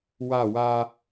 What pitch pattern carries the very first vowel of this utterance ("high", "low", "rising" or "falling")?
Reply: falling